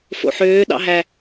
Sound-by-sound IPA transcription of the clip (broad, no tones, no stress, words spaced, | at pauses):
fo̰ħøː ɗɑ̰ɦæ